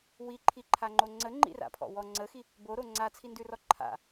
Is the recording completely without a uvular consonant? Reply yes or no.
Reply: yes